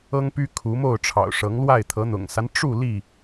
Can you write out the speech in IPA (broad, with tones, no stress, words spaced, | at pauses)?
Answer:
ɤ˦ŋpy˦ kʰu˨˦ mo˥˨ʊ̯ʈ͡ʂʰɑ̰˨˩ʊ̯ʂɤ˨˦ŋlwa˥˨ɪ̯ t̪ʰɤ˨˦n̪ʊ̰˨˩ŋsa˦n ʈ͡ʂu˥˨ li˥˨